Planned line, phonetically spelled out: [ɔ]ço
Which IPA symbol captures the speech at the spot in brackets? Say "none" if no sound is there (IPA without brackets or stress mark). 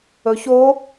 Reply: ɵ